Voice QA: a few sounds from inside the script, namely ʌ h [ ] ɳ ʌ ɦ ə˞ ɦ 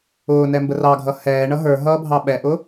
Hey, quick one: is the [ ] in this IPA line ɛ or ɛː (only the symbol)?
ɛː